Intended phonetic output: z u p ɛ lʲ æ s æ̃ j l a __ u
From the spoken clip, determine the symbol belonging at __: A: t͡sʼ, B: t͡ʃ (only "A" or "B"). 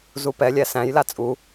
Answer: A